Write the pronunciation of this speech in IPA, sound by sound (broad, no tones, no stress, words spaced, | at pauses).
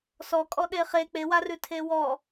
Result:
sɔkʼɔ ɗeχe k͡pewarʉ tʰewɔ